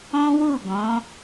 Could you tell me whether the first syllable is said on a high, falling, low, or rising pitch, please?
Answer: high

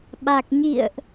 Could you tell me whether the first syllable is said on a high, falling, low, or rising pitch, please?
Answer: low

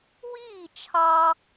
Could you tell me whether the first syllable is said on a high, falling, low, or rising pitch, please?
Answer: falling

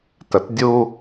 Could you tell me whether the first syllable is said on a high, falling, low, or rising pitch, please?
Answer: low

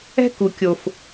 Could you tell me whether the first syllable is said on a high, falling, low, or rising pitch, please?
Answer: high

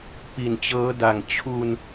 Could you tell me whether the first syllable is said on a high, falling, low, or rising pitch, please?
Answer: low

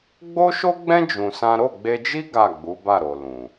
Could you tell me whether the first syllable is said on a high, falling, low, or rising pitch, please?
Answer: high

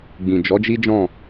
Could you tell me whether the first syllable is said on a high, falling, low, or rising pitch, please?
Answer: low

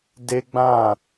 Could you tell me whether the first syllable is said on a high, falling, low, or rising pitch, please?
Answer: high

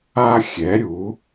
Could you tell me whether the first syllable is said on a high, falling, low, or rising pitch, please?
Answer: high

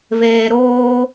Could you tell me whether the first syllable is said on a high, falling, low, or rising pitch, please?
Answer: low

